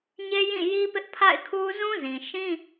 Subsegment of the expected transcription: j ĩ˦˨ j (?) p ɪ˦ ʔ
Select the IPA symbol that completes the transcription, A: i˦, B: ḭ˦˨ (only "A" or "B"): A